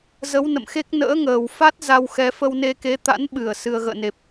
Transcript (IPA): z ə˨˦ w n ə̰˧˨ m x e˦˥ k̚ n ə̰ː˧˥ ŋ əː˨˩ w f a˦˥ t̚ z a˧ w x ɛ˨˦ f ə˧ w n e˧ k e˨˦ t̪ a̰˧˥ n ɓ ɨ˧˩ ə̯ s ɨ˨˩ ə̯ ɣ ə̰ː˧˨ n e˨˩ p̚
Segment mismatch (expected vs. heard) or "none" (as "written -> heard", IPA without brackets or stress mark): none